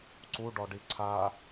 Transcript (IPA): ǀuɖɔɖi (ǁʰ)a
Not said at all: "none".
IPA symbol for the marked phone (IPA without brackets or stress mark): ǀʰ